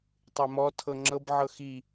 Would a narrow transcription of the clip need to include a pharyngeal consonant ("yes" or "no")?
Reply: yes